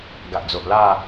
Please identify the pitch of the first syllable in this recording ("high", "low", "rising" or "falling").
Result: low